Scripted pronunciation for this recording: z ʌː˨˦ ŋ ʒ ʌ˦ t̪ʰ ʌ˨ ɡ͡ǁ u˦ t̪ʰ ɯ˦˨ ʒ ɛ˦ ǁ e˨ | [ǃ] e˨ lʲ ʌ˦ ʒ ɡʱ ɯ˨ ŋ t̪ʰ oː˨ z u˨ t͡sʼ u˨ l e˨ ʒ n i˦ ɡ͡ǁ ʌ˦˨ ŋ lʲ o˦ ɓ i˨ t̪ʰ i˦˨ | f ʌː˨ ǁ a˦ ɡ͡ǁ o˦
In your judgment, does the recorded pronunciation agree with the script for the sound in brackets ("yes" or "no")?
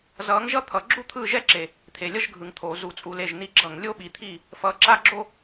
no